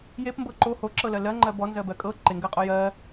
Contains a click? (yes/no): yes